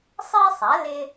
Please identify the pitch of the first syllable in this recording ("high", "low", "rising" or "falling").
high